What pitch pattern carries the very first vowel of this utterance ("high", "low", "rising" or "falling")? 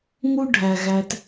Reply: high